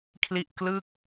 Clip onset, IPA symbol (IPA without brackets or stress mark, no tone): kʰ